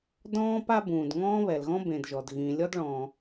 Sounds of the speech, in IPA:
dɔ̃ː˥p a˥bũː˩d ŋɔ̃ː˥βɛ˩lɣɔ̃˥bẽ˩d ʒɔ˩d ɣĩ˩lʲɔ˥dɭɔ̃ː˩

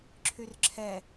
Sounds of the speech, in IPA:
ǁʰyrǁʰɛ

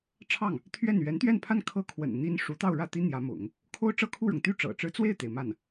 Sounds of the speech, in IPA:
ʈ͡ʂʰɑ˥˩ŋ | t̪ʰɥɛ˥˩n ɥɛ˧˥nt̪ɥɛ˥˧npʰa˥˧n kʰɤ˥˩kʰwə̰˨˩n n̪i˥n ʂu˧˥t̪ɑ˥˧ʊ̯ɻä˥˩t̪i˥ n̪jä˧˥mʊ̰˨˩˦ŋ | kʰo˥ʊ̯ʈ͡ʂɤ˥˧kʰu˥˩ɻʊ˩ŋ t̪y˥˩ ʈ͡ʂɤ̰˨˩ʈ͡ʂɻ̩˥ t͡swe˥˩ɪ̯t̪e˩ɪ̯ ma˥˩n

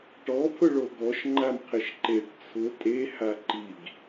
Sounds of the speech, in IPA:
ʈɔpʰʊ ɭoɡɔʃ ŋ͡ǃamqʰɪʃǃeʈ t͡sʰʊ tʼe haǃiɡ

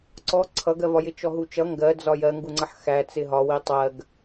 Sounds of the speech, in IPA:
ǀɔ ǀʰʌɡɜvɒjɪ t͡ʃɔɦut͡ʃʌ ŋɡɜ d͡zɒjɜŋɡuŋ͡ǀʌħ xæ t͡sɪɦɒwi tˤɜɡ

